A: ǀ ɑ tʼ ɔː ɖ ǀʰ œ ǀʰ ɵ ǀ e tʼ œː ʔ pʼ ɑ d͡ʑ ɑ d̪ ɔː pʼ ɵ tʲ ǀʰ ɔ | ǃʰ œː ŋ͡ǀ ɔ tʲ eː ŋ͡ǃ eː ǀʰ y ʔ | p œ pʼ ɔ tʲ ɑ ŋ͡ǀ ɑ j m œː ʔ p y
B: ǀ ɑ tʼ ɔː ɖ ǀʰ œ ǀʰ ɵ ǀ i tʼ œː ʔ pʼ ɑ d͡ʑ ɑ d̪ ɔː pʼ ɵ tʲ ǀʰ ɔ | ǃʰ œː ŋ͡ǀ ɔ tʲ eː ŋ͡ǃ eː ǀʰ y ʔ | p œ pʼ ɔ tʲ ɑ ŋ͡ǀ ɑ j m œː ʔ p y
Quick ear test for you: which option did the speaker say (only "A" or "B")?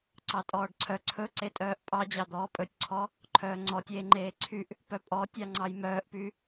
A